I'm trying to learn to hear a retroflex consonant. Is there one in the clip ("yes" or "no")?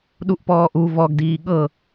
no